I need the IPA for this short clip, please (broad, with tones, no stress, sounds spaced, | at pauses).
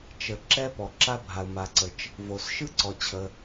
t͡ʃ ə˩ ǁ ɛ˥ p ɔ˩ ǁ a˥ bʱ a˩ ʊ̯ m a˩ ǀ ə˩ t͡ʃ | v o˩ s ʃ ɯ˥ ǀ ɔ˩ t͡ɕʰ ə˩